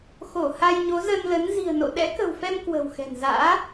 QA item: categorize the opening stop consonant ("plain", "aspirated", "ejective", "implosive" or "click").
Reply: implosive